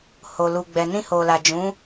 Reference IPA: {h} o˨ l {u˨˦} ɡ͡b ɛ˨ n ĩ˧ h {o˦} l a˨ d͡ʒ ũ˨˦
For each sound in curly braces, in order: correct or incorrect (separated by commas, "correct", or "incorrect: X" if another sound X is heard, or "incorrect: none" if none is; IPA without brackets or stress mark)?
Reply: correct, incorrect: u˨, incorrect: o˨